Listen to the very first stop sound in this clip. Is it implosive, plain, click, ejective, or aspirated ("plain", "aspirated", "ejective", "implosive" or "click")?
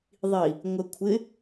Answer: aspirated